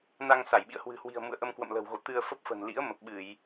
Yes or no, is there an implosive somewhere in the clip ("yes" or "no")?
yes